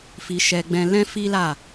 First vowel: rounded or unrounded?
unrounded